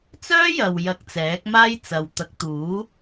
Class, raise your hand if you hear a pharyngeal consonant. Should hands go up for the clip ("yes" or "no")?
no